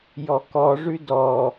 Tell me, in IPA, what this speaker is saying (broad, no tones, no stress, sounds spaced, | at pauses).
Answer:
j ɔ k ɔ ʐ ʉ d ɔ